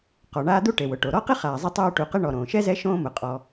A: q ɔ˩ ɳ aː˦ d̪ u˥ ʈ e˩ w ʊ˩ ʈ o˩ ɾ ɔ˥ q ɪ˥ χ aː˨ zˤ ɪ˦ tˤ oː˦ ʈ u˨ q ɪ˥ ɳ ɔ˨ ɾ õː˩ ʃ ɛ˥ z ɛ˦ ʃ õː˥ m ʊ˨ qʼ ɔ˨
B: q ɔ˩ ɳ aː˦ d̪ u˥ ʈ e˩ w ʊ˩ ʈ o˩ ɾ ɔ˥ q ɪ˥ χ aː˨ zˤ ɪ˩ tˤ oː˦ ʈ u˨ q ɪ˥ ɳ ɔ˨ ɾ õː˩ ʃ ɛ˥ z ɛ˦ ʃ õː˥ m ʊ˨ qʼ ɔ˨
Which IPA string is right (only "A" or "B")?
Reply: A